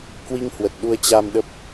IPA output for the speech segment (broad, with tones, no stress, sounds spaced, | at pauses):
k w i˧ ŋ h w ə˨˩ t̚ ɗ u˧ ə̯ t͡ɕ a˧ m ɗ ə˦˥ p̚